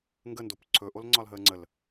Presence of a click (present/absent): present